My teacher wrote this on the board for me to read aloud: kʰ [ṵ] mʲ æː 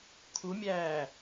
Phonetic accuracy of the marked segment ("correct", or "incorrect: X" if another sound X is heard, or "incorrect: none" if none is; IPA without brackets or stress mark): incorrect: u